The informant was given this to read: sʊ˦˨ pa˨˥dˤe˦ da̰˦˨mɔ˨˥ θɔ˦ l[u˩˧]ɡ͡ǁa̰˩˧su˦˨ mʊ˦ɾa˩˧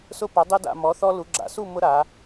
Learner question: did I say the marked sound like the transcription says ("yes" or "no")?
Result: yes